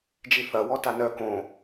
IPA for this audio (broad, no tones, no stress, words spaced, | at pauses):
d͡ʒiθɐ wɔtanœ kõ